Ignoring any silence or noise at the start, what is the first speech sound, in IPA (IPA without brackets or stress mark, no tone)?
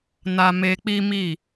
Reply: n